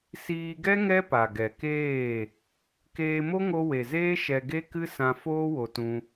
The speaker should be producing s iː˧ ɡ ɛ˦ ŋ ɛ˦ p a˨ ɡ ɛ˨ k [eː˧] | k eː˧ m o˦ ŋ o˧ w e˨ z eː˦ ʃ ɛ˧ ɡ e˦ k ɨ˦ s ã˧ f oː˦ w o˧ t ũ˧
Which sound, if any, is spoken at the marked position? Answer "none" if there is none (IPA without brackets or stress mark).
eː˦˨